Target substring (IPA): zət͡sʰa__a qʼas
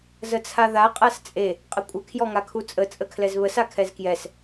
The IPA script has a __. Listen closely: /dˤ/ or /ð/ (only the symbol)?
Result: ð